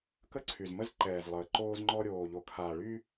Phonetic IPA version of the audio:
kə˦ǀʰy˨z mə˦zǃɛː˨zlˠəː˨ ǃoː˦zŋ͡ǃɔ˦ ɾʲoː˨ʎo˨kʰaː˨ ɭy˦

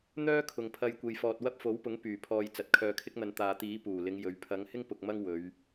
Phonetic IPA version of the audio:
n̪œː˥kʰʊ˨ŋpʰɐ˧j kʷe˧jfɔː˧t̚ wɐ˥p̚ fo˨˥wpʊ˨˥ŋ pyː˨˩pʰɔː˨j t͡sɐ˨t̚kʰœː˧kʰɪ˥k̚n̪ɐ˧n t̪aː˨t̪iː˨˥ puː˨˩lɪ˨˧ŋ jɵ˨˧ɥ pʰɐ˨˧ŋ hɪ˥ŋpʊ˨k̚ mɐ˥ŋwɵ˨˧ɥ

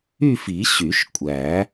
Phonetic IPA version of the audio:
y˥˧fi˨˩˦ ɕy˨˩˦ʃkʷʼæ˨˩˦

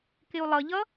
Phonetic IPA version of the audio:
kɪu̯lˠʌʎʌ

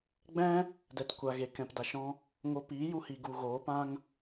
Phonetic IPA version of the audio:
ɡ͡bɛ̃˦ | dɛ˨tkʷa˨ɣe˨ kɛ̃˨pda˨ʃɔ̃˧ | ŋo˧ piː˨˦ju˧hi˨ ɡu˨ɣoː˨˦pã˦ŋ

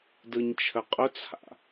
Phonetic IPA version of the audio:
dɯɲt͡ʃʰəqʼʊt͡sʰa̰

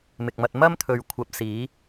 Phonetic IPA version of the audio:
mɪ˨k̚mɐ˧t̚ mɐ˥mt̪ʰɵ˨ɥ kʷʰɐ˨p̚siː˨˧

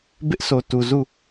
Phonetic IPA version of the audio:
bɪ˦ʔso˨ tu˨ zu˦˨

